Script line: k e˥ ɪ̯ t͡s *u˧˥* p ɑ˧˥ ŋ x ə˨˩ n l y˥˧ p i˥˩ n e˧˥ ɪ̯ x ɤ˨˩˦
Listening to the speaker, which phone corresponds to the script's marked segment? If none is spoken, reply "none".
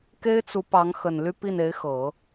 u˧˥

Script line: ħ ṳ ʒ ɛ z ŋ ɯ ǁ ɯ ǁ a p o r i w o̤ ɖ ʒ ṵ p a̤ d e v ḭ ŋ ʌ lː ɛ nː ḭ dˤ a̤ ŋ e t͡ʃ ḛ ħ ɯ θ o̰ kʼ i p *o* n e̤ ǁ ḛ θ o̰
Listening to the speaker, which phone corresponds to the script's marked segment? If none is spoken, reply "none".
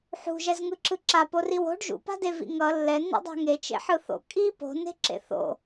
o̤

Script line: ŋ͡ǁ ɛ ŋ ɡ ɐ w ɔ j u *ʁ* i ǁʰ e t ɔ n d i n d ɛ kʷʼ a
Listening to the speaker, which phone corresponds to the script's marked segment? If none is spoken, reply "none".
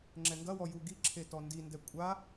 ɡ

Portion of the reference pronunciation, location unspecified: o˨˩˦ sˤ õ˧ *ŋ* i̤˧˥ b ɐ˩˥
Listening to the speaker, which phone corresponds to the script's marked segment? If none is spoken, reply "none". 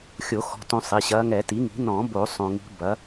ŋ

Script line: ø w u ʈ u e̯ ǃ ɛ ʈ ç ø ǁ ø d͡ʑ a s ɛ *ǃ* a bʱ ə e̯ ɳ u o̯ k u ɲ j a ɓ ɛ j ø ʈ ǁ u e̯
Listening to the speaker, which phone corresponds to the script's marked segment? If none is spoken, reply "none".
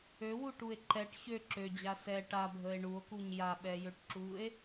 ʈ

